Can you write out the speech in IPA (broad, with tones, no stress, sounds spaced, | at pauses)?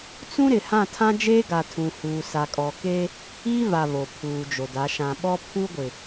t͡s ũ˦ ɾ ɪ˨ h ã˦˨ tʰ ã˦ d͡ʒ eː˦ ɡ a˨ tʰ ũ˨ h uː˨ s a˨ kʼ ɔ˨ k eː˦ | iː˦ v a˨ β o˨ pʰ uː˨ d͡ʒ o˨ d a˨˦ ʃ ã˨ ɓ ɔ˦ pʰ uː˦ ɡʷ ɪ˨